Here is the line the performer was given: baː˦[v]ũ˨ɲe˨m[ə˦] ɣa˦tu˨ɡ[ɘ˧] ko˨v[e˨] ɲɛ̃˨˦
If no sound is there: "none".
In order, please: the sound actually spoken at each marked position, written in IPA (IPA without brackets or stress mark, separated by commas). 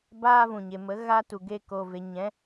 v, ə˨˦, e˧, e˨